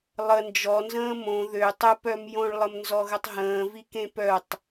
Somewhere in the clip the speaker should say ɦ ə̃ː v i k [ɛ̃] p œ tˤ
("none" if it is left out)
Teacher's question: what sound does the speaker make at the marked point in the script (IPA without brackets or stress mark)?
ẽ